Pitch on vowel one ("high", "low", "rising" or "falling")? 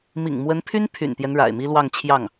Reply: low